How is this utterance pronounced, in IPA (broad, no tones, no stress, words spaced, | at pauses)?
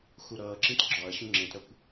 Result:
xuɾʌːǁĩt ɡ͡ǁɒɐ̯ ɕũŋ͡ǁẽtɾʌkʷ